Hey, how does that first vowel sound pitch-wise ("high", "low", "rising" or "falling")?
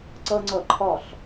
high